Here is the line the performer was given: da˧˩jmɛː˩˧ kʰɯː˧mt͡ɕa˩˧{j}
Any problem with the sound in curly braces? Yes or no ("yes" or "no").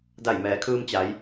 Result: no